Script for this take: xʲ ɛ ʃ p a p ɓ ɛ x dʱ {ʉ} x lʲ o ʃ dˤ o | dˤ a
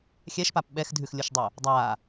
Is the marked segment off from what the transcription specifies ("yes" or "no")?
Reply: no